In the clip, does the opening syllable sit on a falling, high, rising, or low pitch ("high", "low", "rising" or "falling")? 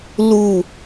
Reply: falling